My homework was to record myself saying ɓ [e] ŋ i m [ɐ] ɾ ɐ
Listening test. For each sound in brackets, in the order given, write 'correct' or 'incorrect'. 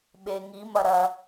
correct, correct

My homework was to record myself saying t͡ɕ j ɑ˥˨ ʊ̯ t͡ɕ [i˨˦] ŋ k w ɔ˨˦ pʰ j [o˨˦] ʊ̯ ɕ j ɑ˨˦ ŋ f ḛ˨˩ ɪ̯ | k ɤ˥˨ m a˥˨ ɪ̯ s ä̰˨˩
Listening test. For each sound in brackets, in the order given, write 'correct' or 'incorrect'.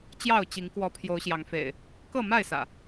correct, correct

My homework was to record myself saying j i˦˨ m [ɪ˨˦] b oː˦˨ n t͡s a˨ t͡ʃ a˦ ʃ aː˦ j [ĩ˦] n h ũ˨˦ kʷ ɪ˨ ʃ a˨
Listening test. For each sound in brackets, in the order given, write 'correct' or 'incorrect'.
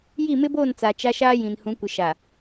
incorrect: ɪ˦, incorrect: ĩ˨

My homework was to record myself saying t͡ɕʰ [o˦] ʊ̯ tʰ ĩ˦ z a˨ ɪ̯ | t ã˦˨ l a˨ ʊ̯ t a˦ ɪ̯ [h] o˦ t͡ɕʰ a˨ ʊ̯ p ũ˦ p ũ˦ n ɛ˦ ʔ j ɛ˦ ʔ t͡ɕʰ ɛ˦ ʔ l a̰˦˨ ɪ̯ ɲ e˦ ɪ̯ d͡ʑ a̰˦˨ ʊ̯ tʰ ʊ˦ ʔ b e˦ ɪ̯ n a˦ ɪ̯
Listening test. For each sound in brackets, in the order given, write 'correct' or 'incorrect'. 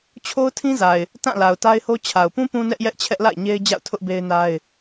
correct, correct

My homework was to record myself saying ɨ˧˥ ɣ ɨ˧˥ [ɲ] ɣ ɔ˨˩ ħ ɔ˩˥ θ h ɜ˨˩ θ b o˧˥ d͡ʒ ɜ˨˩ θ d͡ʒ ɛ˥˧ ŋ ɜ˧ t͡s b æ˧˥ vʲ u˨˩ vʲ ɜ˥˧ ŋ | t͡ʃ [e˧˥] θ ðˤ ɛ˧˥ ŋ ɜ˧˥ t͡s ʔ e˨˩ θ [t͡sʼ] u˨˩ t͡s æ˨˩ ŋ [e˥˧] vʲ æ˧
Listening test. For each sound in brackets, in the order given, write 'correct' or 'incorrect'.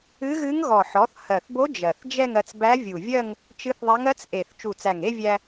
incorrect: ŋ, incorrect: ɨ˧˥, incorrect: t͡ʃ, correct

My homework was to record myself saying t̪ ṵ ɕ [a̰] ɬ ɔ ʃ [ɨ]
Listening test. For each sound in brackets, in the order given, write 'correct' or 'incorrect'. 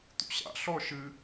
correct, correct

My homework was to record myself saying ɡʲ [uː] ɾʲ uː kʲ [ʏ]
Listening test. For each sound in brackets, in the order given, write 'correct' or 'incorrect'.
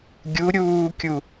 incorrect: u, incorrect: u

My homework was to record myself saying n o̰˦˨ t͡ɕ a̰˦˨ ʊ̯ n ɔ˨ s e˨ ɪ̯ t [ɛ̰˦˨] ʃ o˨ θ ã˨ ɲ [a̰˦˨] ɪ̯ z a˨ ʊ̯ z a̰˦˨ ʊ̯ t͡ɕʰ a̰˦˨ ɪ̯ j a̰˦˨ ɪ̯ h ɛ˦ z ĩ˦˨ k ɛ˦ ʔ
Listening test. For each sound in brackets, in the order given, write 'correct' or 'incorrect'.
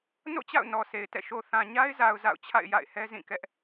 correct, incorrect: a˦

